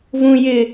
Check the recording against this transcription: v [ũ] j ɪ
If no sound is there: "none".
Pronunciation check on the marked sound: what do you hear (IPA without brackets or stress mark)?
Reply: ũ